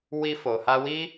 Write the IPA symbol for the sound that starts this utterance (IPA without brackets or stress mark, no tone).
w